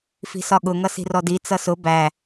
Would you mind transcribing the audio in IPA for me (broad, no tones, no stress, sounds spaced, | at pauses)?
f i̤ s ɒ ɠ ʊ ŋ ʌ s i̤ r ɔ d i t͡s ʌ s ʊ b æ